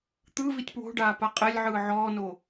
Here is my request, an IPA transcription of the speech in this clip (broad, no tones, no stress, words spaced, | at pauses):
t̪ɯ vitʲpwo̤ɖaː paqʼɛlʲʕɯː ʕɔːno